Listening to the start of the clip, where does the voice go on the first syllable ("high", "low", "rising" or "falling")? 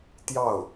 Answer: falling